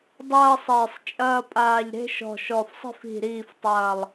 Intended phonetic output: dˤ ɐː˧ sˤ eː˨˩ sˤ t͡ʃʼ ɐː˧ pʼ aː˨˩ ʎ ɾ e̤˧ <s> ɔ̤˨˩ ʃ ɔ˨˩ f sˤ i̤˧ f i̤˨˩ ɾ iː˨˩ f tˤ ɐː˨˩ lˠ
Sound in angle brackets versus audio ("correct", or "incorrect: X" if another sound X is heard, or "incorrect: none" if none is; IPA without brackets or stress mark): incorrect: ʃ